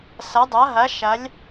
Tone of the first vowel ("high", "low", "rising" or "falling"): rising